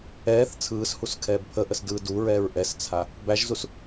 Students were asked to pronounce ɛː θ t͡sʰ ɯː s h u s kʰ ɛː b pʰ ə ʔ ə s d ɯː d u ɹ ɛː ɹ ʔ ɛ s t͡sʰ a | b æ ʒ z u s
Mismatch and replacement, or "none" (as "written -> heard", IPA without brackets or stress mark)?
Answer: none